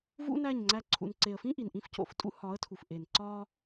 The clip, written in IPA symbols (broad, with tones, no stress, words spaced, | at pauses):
vṵ˦næ˦˨ɲŋ͡ǀæ˧ ǀʰṵ˨nǀe˨ə̯fĩ˦ ʔi˨nʔĩ˧fco̰˨ftʼṵ˦ hɒ˨˦ə̯tʰu˨fʔe˨n ǀɒ˦